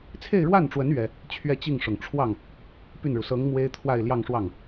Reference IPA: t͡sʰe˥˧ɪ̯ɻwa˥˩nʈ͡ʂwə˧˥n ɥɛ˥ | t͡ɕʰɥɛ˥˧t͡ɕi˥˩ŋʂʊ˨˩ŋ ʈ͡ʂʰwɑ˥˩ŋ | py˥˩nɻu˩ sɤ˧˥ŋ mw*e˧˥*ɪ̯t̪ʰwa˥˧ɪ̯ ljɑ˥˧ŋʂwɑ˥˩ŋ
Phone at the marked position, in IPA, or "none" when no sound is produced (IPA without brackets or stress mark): e˥